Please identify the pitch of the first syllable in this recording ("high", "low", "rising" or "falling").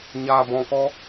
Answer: low